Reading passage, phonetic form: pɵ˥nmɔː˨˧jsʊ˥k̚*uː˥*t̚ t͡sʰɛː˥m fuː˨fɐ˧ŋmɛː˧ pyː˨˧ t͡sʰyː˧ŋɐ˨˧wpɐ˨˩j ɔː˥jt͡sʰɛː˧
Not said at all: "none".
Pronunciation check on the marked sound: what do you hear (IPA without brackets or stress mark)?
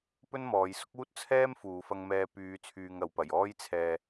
uː˥